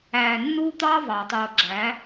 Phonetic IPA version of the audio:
æː˨ nː uː˦ t̪ ɑː˦ v ɑ˨ tˤ oː˨ ɡ͡ǁ æ˨˦

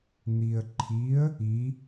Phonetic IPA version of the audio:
n̪ i ə̯ ǃʰ i ə̯ | i

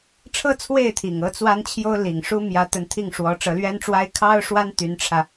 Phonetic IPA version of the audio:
ʈ͡ʂʰ ɤ˥ t͡sʰ w e˥˩ ɪ̯ t̪ʰ i˨˩ ŋ ɤ˥ t͡s w a˥ n t͡ɕʰ j o˥ ʊ̯ l i˨˩ ŋ ʂ u˥ m j ä˧˥ t̪ ə˧˥ n t̪ʰ i˥˩ ŋ ʂ w ɔ˧˥ ʈ͡ʂ ɤ˧˥ l ɥ ɛ˥ n ʈ͡ʂ w a˥ ɪ̯ kʰ ɑ˥ ʊ̯ ʂ w a˥ n t̪ y˧˥ n ʈ͡ʂʰ ä˧

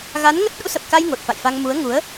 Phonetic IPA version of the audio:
ɣ a˨˦ n ŋ ə˦˥ t̚ ɗ ṵ˧˥ s ə˨˩ p̚ k a˧ j ŋ o˨˩ t̚ f a̰˧˨ j f a˧ ŋ m u˨˦ ə̯ ŋ u˨˦ ə̯

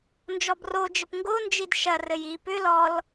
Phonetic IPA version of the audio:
n d͡ʒ ɔ b r o d͡ʒ ɘ p ŋ ɡ o n d͡ʒ i d ʃ ɐ r ɘ j i p ʏ l ɔ l

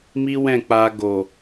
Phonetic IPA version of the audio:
m i˦ w ɛ̃˦˨ k͡p a˧ ɡ o˨

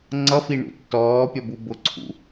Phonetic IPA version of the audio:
ŋ͡ǀ ʌ f i ɳ ṵ tː ɔː pʲ ɒ b u b ʊ ǀʰ ṵ

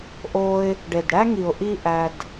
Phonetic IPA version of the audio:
ʔ o˧ ɪ̯ | ɖ e˨ d ɽ æ˦ ŋ i˨ ʊ̯ ʔ i˦ ʔ æ˧ d

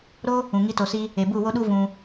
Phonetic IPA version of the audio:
ɾ o˦ | ũ˨ ŋ i˦ t o˧ s i˦ | e˨ b u˦˨ w o˦ ɗ u˦ v ũ˧

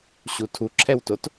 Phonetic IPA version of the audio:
ɕ u tʰ u ǁʰ ɛ w t o t

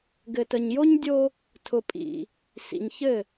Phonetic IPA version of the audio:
ɡ ɘ˨ t ə˨ ɲ j o˦ ɲ dʲ o˦ | tʰ ʊ˨ pʼ ḭ˨ | s ḭ˨ ɲ ç ɘ˦˨

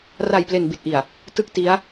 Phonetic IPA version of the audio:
r a˨˩ j p l e˨˩ n b i˨˩ t̚ ʔ i˨˩ a̯ | t ɯ˥˩ k̚ t i˦˥ a̯

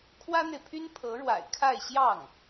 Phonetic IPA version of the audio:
kʰ w ä˥ n̪ e˨ ɪ̯ pʰ y˥ n pʰ ɤ˧˥ ɻ w a̰˨˩ ɪ̯ kʰ a˥˧ ɪ̯ ɕ j ɑ˥˩ ŋ

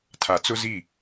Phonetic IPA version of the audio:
tʰ a˨ t͡s ʊ˦ z i˦˨

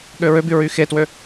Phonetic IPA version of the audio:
ɠ ø ɹ ø b y ɹ y x e t w ø

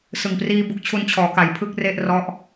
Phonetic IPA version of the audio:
s ɯ˨˩ ŋ p r iː˧ b u˦˥ k̚ t͡ɕʰ u˧ n t͡ɕʰ ɔː˩˦ k a˩˦ j pʰ ɯ˥˩ k̚ r e˥˩ ʔ r ɔ˦˥ ʔ

